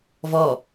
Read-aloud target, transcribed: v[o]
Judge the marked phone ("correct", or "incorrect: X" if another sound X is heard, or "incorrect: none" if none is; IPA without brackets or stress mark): incorrect: ɔ